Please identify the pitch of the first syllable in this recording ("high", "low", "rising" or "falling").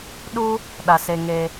high